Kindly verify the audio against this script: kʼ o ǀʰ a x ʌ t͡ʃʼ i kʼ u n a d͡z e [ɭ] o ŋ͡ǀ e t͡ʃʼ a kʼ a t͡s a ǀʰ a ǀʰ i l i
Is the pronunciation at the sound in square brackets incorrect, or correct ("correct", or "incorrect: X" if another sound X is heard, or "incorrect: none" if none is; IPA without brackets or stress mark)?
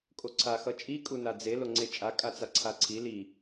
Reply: incorrect: l